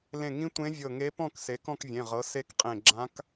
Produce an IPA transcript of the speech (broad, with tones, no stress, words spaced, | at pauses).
lẽ˧˩ŋĩ˧˥ tʷẽ˧˥vʲɤ˧˩ŋe˧˥pɔ̃˥˨k se˩˥kɔ̃˥˨kvʲẽ˩˧˩ʁɤ˩˥ se˧˥kqʼẽ˧˩ɡ͡ǁã˧˥k